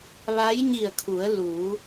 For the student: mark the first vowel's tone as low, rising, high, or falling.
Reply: rising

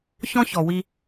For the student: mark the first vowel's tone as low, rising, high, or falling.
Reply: high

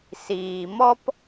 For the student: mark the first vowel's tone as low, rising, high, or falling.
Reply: low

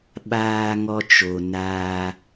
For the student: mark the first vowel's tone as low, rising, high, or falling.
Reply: high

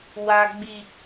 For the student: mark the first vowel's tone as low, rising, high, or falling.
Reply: high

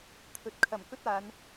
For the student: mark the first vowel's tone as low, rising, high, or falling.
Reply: low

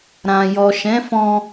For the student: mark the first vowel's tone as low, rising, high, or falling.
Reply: low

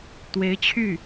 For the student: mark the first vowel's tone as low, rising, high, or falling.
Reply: rising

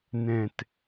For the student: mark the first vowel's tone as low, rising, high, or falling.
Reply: low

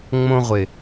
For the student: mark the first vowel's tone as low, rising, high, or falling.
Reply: high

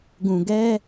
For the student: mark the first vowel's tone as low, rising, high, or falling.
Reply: low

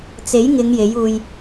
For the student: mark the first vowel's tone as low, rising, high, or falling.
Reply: rising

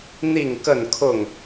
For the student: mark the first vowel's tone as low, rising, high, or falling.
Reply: falling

